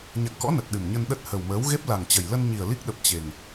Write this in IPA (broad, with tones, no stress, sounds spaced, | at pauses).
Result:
ɲ a̰˧˨ ŋ k ɔ̰˧˥ n ə˨˩ t̚ ɗ ɨ˨˩ m ɲ ə˧ n ɗ ə˦˥ t̚ h ə˨˩ w m əː˨˦ w ɣ e˦˥ p̚ l a˨˩ ŋ t͡ɕ ə˨˩ j l ə˧ n ɲ i˨˩ ə̯ l i˦˥ k̚ ɗ ə˨˩ p̚ t͡ɕ e˨˩ ŋ